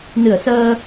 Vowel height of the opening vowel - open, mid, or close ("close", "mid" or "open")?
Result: close